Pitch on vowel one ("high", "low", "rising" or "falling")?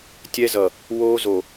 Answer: high